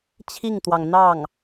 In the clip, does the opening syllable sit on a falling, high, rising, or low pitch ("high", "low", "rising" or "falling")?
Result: falling